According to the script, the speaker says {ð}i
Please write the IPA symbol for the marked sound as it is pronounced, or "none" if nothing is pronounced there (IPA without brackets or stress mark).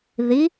ð